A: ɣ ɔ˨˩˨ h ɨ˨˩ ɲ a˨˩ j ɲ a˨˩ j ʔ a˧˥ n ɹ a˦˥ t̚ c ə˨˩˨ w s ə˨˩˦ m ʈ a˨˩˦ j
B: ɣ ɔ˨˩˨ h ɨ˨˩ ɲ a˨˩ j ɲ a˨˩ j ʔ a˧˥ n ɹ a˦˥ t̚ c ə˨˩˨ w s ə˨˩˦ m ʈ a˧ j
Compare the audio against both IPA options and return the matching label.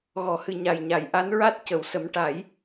A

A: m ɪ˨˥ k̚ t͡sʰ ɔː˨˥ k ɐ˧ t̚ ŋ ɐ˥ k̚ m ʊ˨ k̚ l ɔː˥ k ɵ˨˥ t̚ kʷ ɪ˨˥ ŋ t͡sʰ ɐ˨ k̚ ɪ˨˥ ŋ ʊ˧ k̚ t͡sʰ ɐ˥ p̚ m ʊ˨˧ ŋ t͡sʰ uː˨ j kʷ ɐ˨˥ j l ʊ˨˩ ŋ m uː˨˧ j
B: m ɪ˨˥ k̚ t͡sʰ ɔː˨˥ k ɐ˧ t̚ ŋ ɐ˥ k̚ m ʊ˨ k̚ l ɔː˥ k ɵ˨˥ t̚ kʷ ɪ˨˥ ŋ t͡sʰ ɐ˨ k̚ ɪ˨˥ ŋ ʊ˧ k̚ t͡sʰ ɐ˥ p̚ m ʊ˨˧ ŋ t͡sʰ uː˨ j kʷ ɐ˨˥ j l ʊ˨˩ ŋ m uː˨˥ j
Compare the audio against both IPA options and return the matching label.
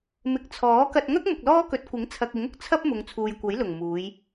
A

